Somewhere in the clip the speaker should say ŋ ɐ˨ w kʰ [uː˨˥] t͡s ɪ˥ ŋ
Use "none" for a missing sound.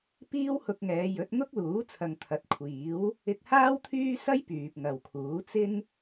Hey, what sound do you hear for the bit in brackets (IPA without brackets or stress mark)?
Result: uː˨˥